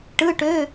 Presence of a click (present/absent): absent